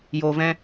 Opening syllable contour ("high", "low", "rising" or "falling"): low